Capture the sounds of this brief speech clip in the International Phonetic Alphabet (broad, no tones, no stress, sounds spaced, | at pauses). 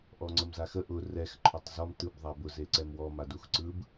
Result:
ʔ ɔ ŋ͡ǀ ə m z a x ə ʔ ʊ r ɛ x ǃʰ ɔ tˤ z ɔ m t ɯ b ðˤ a b ʊ z e ǀ ɛ m w ɔ m a d u x ǀ ɯ b